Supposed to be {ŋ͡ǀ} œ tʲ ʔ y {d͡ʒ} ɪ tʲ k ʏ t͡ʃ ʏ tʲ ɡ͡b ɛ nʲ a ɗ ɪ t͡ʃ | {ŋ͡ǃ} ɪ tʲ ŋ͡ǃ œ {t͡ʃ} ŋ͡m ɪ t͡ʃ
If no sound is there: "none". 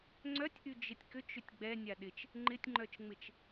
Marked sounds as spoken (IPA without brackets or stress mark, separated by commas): ŋ͡ǀ, d͡ʒ, ŋ͡ǃ, t͡ʃ